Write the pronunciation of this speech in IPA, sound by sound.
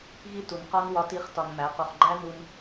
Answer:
ɣi˦tu˨n qɒ˦n wɒ˦ti˦χ tɒ˧nmæ˨˦qo˧χ ɡ͡ǃæ˦nu˧n

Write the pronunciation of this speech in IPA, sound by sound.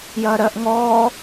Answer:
jɐːɾɜʔ ŋɔː

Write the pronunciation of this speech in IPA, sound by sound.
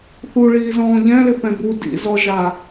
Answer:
θuɭiːzɔ̃ː ʎɛ̃lɪ pɛ̃bu dḭzɔʒa

